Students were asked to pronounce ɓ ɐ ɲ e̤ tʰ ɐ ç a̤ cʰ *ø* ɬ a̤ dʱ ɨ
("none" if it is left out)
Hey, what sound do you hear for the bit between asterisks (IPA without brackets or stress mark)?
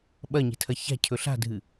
ɵ